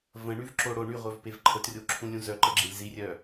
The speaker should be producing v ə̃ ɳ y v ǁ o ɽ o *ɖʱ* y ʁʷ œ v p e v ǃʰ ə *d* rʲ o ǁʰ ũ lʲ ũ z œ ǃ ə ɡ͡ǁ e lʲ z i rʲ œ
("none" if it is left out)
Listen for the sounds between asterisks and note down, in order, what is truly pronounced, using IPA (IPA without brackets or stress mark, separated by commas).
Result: ɳ, t